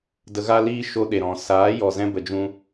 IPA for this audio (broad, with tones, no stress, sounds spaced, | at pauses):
d ə˧ ɣ a˦ l iː˦ ʃ o˦ ɗ e˨ ɾ ɔ̃˨ s aː˨˦ j ɔ˨ z ɛ̃˧ b ə˨ d͡ʒ ũ˧